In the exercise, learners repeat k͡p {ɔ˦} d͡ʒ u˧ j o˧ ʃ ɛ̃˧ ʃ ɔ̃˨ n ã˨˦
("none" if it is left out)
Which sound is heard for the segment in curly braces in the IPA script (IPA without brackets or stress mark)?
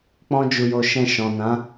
ɔ̃˦